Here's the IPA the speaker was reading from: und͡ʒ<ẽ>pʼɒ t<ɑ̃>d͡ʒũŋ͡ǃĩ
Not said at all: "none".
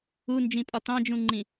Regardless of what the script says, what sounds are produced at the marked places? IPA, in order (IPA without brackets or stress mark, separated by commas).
ĩ, ɑ̃